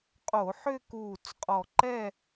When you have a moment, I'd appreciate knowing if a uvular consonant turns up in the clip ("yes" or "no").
yes